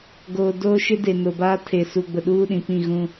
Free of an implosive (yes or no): no